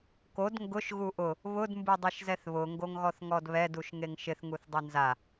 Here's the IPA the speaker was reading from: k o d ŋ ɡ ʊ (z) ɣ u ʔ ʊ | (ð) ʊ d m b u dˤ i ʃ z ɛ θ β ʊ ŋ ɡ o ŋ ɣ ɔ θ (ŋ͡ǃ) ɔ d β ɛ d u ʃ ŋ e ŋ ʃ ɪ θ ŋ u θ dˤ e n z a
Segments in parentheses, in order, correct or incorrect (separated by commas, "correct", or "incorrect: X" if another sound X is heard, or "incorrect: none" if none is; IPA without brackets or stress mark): incorrect: ʃ, incorrect: β, incorrect: ŋ